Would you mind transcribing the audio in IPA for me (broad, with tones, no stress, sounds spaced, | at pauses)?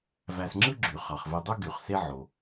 v æ˨ s ŋ͡ǁ ɯ˦ ɡ͡ǁ y˩ χ ɑ˩ χ v e˨ dˤ u˦ ɡ y˩ χ s e˦ ʕ o˩